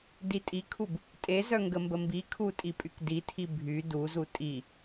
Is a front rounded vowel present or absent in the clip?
present